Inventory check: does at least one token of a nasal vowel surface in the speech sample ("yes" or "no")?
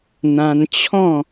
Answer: yes